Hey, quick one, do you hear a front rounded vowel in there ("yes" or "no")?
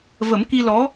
no